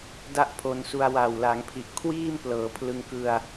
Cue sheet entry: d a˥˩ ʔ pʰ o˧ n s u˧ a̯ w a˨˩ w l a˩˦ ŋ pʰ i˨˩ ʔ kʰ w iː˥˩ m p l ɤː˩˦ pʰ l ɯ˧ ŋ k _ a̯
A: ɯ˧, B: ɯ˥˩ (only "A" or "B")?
A